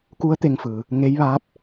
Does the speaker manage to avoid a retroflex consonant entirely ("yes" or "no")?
yes